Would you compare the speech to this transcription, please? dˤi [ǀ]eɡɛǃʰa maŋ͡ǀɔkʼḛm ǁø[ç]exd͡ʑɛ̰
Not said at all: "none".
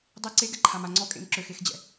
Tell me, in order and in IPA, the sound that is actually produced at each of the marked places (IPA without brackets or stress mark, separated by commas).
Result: ǀ, x